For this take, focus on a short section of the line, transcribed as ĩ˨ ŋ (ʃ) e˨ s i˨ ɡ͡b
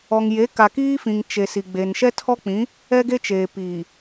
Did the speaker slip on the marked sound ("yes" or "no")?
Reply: yes